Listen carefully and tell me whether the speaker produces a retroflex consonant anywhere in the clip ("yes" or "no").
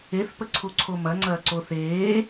no